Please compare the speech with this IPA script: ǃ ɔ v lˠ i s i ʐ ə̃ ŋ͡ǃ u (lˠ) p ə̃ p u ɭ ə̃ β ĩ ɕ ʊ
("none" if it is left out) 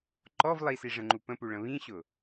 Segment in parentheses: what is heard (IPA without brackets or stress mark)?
none